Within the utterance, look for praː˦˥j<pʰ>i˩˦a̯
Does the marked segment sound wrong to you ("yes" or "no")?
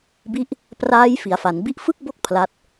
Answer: yes